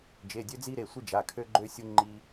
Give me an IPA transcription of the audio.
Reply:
d͡ʒ e˩˧˩ dʲ ø˦ d͡z i˦ ɾ e˩˧˩ sʷ i˦ d͡ʒ a˩˧˩ kʰ ø˦ ɡ͡ǃ ø˦ sʲ u˦ ŋ͡ǃ i˦

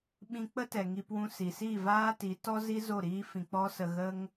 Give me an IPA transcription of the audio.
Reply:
ɓ ĩ˧ k͡p ə˦ t ɛ˨ ŋ i˧ p w ũ˧ s i˨ s i˦˨ v aː˦ t i˨˦ t ɔ˦ z i˦ z o˦˨ ɾ iː˦ f ĩ˧ k͡p ɔ˦ s ə˧ ɣ ə˦ ŋ

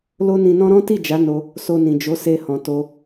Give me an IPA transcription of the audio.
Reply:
l o˦ n ĩ˧ n ɔ̃˦ ɾ ɔ̃˦ t i˦˨ d͡ʒ a˨˦ n o˧ | s o˧ n ĩ˨ d͡ʒ o˨˦ s e˧ h ɔ̃˨ t o˧

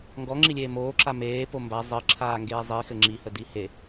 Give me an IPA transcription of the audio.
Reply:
ŋ ɡ ɔ ŋ͡ǁ i lʲ eː m oː ǁ a m eː p o m b a zˤ ɘ ǁʰ aː ŋ ɡ eː zˤ i x ɘ ŋ͡ǁ i h ə d i h e

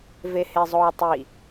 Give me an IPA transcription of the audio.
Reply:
v e h e zˤ oː tˤ i

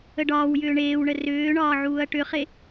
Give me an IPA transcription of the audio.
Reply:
ə ɖ ɒː w j ʏː ɳ eː w ɳ ə r ʏː ɳ ɒː ʕ uː ɐ̯ ʈ ʏ χ e

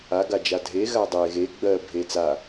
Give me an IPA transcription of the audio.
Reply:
a ɡ a d͡ʒ a dʱ e ɣ a dˤ e ɣ e ɡ͡b ɜ bʱ e t͡s a

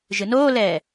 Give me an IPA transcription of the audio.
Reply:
ʒ ɨ n oː l ɛː

